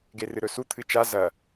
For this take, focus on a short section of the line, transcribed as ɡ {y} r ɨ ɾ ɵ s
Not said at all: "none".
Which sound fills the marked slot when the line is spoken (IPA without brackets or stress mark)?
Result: e